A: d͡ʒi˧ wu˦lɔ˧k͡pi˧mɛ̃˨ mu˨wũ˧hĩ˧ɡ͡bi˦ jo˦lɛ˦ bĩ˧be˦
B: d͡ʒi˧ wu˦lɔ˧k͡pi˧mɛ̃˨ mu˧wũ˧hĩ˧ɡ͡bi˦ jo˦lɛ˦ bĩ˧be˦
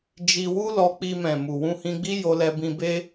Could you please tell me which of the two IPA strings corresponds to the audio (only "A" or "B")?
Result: A